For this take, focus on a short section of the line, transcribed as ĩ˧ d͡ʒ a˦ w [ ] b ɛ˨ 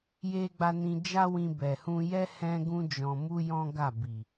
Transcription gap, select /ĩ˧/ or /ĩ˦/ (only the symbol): ĩ˧